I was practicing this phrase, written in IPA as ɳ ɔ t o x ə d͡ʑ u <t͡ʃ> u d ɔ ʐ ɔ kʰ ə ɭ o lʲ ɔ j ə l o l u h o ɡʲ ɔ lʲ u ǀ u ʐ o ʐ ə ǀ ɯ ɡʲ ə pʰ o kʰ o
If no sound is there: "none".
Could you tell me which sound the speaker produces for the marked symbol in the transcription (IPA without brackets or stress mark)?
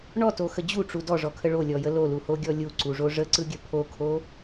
ʈ͡ʂ